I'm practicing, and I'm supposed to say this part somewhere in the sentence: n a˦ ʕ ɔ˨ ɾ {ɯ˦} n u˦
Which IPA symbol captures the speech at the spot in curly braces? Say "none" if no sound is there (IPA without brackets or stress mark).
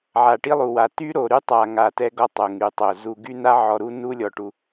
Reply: u˦